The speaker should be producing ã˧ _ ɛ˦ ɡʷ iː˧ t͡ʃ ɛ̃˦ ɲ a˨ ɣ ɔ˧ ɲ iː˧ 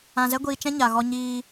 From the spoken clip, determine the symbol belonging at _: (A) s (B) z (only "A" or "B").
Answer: B